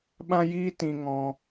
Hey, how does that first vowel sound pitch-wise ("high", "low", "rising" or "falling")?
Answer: high